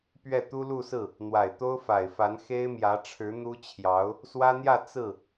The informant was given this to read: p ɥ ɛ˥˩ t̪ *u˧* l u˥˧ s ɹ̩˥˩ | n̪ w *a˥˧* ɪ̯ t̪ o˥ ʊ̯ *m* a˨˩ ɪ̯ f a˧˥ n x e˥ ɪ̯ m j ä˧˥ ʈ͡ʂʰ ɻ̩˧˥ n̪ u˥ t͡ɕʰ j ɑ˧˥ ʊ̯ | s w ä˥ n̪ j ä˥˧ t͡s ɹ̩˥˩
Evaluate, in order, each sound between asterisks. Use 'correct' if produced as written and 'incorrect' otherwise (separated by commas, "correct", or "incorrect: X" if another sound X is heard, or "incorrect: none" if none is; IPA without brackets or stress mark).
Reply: incorrect: u˥, incorrect: a˨˩, incorrect: f